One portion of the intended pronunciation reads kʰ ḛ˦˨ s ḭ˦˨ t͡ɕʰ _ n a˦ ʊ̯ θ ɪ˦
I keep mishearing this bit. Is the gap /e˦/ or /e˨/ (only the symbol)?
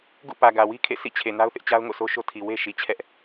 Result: e˨